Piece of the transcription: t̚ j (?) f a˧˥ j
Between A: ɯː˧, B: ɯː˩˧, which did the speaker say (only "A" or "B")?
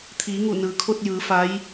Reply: B